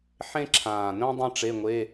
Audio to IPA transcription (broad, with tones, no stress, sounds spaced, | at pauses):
ħ ẽ˥ ǁʰ ãː˨˩ n œ̃˥ dˤ ĩ˥ ʈ͡ʂ e˧˥˧ ŋʷ e˧˥˧